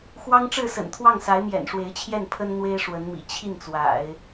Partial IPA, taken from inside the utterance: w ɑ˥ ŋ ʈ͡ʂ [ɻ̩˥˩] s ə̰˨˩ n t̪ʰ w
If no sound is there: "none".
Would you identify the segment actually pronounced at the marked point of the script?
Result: ɻ̩˥˩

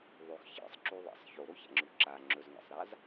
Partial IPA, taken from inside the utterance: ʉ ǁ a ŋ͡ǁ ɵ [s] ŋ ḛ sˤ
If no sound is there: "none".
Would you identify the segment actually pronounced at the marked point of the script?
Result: z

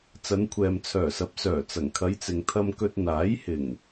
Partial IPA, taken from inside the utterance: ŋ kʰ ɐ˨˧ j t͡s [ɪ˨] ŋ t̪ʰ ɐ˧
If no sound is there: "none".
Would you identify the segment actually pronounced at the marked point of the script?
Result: ɪ˨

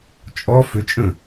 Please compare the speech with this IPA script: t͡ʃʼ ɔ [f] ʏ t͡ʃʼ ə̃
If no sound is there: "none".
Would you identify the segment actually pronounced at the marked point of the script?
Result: f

